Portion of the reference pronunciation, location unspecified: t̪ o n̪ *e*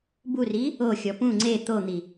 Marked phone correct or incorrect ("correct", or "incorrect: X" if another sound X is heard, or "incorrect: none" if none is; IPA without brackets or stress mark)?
incorrect: i